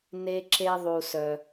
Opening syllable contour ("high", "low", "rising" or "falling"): high